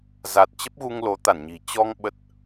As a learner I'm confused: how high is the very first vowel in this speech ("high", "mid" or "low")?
low